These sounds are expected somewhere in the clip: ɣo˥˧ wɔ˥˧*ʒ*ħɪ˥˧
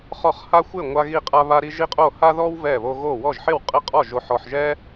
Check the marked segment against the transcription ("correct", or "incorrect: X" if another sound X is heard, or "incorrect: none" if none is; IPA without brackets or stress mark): correct